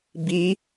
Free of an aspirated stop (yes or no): yes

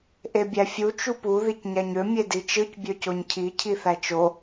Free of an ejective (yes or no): yes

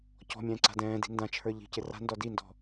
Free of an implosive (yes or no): yes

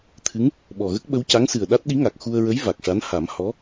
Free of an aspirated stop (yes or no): no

